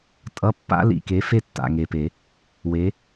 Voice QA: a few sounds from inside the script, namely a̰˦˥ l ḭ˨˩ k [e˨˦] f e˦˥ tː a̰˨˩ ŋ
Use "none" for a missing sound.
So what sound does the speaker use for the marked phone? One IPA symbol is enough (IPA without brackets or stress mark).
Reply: e˨˦